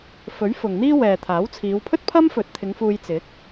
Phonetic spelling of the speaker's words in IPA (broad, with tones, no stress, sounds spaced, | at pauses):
f ɵ˨˥ ɥ f ʊ˨ ŋ n̪ iː˥ w ɛː˨ t̪ʰ aː˨˥ w t͡sʰ iː˨˧ w pʰ ɵ˥ t̚ pʰ ɐ˥ m f ɵ˨˥ t̚ t̪ʰ ɪ˨˧ ŋ f uː˧ j t͡s ɪ˨˥ k̚